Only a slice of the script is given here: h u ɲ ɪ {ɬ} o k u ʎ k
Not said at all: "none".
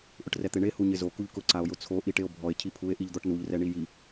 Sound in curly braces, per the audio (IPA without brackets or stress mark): z